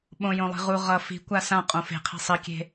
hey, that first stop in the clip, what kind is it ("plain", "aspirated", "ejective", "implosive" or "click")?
implosive